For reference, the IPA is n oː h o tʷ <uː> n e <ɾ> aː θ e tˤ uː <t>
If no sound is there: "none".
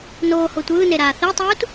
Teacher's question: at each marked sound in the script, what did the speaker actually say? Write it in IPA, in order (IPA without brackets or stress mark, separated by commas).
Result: ɯː, ɾ, t